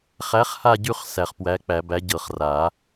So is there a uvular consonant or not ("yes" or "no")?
yes